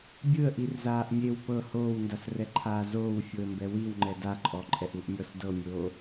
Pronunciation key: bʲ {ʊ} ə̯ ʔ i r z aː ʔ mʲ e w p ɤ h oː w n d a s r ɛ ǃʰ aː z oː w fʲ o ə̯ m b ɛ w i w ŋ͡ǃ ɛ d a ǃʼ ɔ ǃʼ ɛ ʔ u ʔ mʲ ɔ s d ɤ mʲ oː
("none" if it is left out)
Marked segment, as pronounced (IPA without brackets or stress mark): ɯ